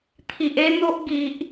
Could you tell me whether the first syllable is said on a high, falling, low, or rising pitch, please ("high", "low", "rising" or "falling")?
low